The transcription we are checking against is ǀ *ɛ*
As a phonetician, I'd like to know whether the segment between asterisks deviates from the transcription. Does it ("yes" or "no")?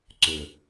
yes